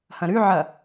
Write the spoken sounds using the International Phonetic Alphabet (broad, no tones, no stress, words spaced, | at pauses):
hɐ̃ɾʉʕɐ